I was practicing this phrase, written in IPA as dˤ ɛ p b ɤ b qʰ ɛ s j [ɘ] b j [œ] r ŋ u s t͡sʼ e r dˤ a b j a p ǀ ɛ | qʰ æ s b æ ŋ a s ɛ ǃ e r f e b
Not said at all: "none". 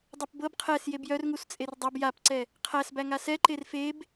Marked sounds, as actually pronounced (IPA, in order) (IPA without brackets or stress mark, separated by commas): e, œ